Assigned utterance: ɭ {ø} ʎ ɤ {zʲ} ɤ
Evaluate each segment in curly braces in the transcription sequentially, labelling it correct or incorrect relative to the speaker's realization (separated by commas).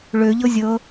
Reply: correct, correct